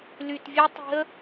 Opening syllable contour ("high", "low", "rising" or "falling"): low